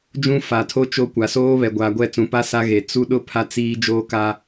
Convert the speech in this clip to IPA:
d͡ʒ ũ˦ f a˨ tʰ o˦ t͡ʃ o˦ kʷ a˨ s oː˦ β ɛ˨ ɡʷ aː˨ ɡʷ ɛ˦˨ t͡s ũ˨ p a˦ s a˦ ɣ e˨ t͡s u˦ ɗ ʊ˦ pʰ a˦ t͡s iː˦ d͡ʒ oː˦ k a˦

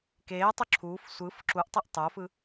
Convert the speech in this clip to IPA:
k eː tˤ o ǁʰ uː f sʷ ɯ f ǁ u ʔ tˤ i ʔ tˤ o f ɯ

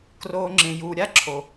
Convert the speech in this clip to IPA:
k r oː˦ ŋ͡ǁ ẽ˧ j uː˧ ɾʲ a˦ ǁʰ o˨

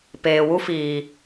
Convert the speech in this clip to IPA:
p eː˨ w u˦ f iː˨

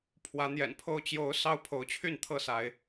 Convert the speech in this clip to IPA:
pʰ w ä˨˦ n̪ j ɛ̰˨˩ n pʰ o˥˨ ʊ̯ t͡ɕ j o˨˦ ʊ̯ s ɑ˦ ʊ̯ pʰ o˨˦ ʊ̯ t͡ɕʰ y˥˨ n t̪ʰ ɤ˥˨ s a˨˦ ɪ̯

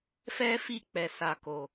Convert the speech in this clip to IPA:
f ɛ˦ f i˦˨ k͡p ɛ˨ s a˨ k o˨

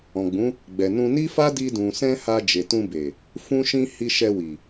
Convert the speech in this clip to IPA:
ɔ̃˨ ɡ͡b ũ˨˦ | ɡ͡b ɛ˨ n ũ˧ n i˦ f a˦ d i˧ d ũ˨ s ɛ̃˧ h a˧ d͡ʒ e˨ t ũ˧ b e˨ | f ũ˧ ʃ ĩ˧ h i˧ ʃ ɛ˧ w i˨

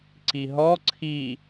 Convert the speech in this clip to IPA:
ǀ i ɦ ɔ ǀʰ i

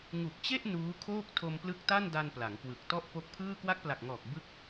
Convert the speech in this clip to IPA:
ŋ u˨˩ k̚ t͡ɕ e˥˩ ʔ n uː˦˥ kʰ oː˥˩ k̚ tʰ o˧ m p l ɯ˦˥ k̚ t a˥˩ n d a˧ n p l a˩˦ ŋ k w ɯ˨˩ k̚ t ɔ˥˩ ʔ p o˦˥ k̚ pʰ ɯː˥˩ k w a˦˥ k̚ p l a˨˩ k̚ ŋ ɔː˨˩ k̚ b ɯ˦˥ k̚

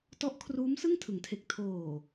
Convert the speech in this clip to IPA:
t ɔ˦˥ ʔ kʰ r uː˦˥ m s ɯ˥˩ ŋ tʰ ɯ˩˦ ŋ tʰ e˨˩ k̚ tʰ oː˨˩

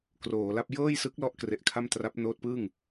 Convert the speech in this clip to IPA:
k r oː˩˦ l a˥˩ p̚ j ɤː˥˩ j s ɯ˦˥ k̚ l ɔ˦˥ ʔ k r e˨˩ ʔ kʰ a˥˩ m t r a˦˥ p̚ n oː˦˥ t̚ p ɯː˥˩ ŋ

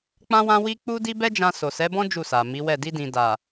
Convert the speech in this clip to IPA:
k͡p ã˦ w ã˦ w i˦ k͡p u˦ d i˦ b ɛ˦ d͡ʒ ã˧ s o˨ s ɛ˨˦ b ɔ̃˦ d͡ʒ u˦˨ s a˨ m i˨˦ w ɛ˦˨ d i˧ d ĩ˨ d a˨

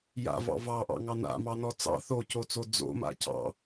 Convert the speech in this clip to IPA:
j a̰ v ɑ̰ v ɑ ʔ ɑ̰ ŋ ɑ n a̰ m ɑ n ɔ t͡s ɑ̰ θ o c o t͡s o d͡z o̰ m a̰ c ɑ̰

